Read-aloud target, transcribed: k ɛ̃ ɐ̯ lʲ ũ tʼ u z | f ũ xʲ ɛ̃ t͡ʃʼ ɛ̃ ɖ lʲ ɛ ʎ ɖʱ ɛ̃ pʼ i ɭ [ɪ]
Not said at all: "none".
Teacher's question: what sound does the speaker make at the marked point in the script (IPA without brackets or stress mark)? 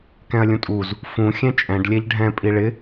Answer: ɪ